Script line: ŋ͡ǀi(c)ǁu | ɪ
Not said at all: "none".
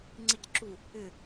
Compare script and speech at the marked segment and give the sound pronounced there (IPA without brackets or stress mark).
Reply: c